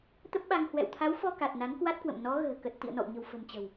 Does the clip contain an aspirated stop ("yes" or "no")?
yes